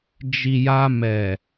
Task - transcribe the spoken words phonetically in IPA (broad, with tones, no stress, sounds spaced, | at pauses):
d͡ʒ i˨ j a˧ m ɛ˨